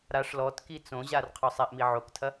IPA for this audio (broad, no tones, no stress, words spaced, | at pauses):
ɾaʂ lɔtki t͡sõʑar qʰɔsˤaʔmi ʕoktʰɐ